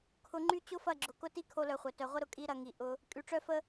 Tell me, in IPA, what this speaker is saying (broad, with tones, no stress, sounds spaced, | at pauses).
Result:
kʰ ʊ˧ ŋ͡ǃ y˦ t͡ɕ ʊ˦ f ɐ˦˨ ɡ͡ǁ ʊ˨ k ʊ˦ t i˦ kʰ o˦ l œ˧ χʷ œ˨ t œ˨ ʁʷ ə˦ ɾ ʊ˧ kʼ i˦ ɾ ɐ˦ ŋ i˧ ʔ ʊ˧ | kʼ y˧ ʈ͡ʂ œ˦ f ə˦